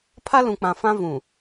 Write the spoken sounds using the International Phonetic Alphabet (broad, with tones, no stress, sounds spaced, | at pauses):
pʰ a˦ l ũ˨ k͡p ã˨ f ã˦ v ũ˨